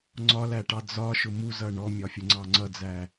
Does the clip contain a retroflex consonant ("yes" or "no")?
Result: yes